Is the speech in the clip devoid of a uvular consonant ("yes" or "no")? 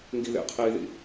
no